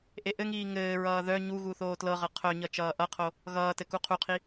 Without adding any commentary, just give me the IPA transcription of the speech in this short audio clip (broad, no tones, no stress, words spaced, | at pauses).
ʔeʔɘŋiː ŋɘːɹʌː ðœ ɲuɣu θoːtlɤʁɤ qʰœɲʌ t͡ʃʌːʔʌqʰo | ɣʌːtɘ kuqʰuqʰi